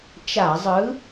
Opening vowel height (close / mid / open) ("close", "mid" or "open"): open